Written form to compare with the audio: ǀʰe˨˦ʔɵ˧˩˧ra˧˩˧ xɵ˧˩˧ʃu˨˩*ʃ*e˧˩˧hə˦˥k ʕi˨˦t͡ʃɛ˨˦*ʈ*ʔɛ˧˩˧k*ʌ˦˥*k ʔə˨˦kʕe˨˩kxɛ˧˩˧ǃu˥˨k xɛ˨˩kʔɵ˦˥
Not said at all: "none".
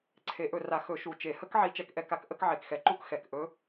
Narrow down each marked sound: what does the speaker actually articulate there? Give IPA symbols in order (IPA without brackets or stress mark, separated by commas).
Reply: t͡ʃ, k, a˦˥